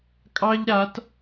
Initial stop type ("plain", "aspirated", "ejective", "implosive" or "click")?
ejective